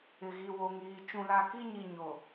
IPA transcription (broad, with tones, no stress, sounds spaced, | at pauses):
ɪ˨ ɣ i˨ w o˨ ŋ iː˨ t͡ʃ ũ˨ l a˨ k i˦ ɲ i˨ ɲ o˨